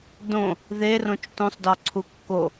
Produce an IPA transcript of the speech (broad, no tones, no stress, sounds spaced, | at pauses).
d õ | ð e r õ t͡ʃ t õ sˤ d ɒ ǀʰ u kː o